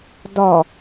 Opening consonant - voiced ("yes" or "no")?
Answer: yes